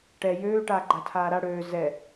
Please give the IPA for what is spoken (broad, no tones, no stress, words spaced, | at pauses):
ʈɛ jøːʈaːɡ͡ǃa tʰaːɾa ɽøː zɛ